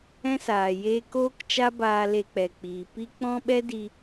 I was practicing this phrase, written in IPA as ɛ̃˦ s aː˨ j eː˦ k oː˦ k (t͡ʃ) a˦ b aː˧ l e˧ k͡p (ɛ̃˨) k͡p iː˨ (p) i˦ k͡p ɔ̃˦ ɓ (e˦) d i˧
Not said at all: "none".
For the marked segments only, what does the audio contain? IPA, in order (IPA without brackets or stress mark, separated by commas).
t͡ʃ, ɛ˨, p, ɛ˦